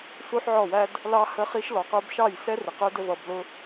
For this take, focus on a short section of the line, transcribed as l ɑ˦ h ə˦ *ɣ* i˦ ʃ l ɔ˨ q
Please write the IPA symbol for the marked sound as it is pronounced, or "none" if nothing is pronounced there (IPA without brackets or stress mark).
χ